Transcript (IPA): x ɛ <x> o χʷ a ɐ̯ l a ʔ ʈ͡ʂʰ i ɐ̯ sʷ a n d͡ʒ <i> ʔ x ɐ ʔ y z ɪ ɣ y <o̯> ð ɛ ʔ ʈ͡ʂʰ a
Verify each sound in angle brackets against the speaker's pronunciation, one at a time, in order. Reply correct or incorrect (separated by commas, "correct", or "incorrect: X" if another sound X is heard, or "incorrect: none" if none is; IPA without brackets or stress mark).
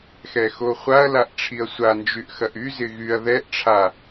correct, incorrect: y, incorrect: ɐ̯